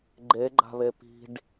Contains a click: yes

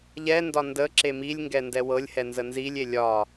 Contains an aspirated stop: no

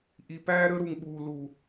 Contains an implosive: yes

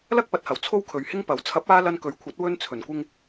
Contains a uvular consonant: no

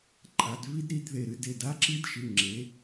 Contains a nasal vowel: no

